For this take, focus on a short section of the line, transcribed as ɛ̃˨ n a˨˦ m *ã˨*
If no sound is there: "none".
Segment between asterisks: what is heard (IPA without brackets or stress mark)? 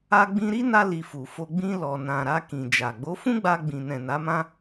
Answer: ã˦